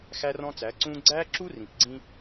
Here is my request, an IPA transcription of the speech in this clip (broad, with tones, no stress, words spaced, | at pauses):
xæ˦rɔ̃˦t͡sæ˨˦ ǀũː˦ ɡ͡ǀæː˦ǁu˦ rĩ˨p ɡ͡ǀĩ˦